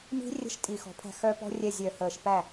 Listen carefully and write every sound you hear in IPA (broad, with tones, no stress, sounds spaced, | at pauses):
m i̤˦˥ rʲ ə̤˦˥ ʃ tʼ i˧˩˧ x ɔ̤˩˥ pʰ æ̤˥˩ x œ˦˥ p ɔ̤˦˥ rʲ ɛ˥˩ zʲ œ˧˩˧ h əː˨˩ ʃ p æ˥˩